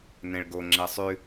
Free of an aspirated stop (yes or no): yes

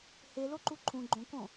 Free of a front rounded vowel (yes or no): yes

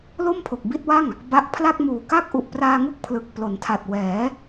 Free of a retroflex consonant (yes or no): yes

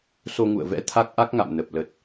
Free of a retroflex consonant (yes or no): yes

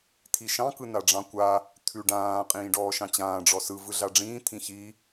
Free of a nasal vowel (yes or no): no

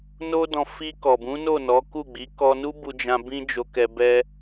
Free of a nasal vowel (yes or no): no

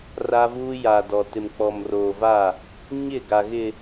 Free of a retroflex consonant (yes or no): yes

